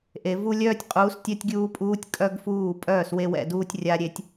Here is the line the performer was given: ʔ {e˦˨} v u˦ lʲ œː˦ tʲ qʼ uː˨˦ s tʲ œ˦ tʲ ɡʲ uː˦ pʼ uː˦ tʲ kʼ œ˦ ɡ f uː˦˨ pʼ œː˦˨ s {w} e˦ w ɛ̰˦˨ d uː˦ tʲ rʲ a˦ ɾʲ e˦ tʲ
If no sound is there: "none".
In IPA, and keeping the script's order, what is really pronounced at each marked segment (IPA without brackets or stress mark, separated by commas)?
e˨, w